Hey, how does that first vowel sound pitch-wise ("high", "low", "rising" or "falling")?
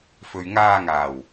low